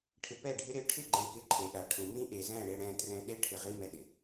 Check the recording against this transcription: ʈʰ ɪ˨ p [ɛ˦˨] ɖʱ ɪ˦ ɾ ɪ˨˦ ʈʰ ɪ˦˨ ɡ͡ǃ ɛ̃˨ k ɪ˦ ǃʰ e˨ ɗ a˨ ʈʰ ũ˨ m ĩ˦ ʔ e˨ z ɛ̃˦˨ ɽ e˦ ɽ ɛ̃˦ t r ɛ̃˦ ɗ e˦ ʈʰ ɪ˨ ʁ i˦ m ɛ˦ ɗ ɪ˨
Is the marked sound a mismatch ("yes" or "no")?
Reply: no